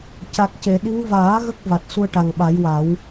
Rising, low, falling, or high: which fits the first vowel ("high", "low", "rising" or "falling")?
low